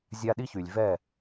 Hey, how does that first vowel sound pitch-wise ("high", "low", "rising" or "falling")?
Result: high